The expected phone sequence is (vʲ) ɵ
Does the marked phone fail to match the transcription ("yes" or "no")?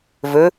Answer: yes